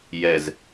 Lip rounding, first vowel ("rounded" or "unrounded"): unrounded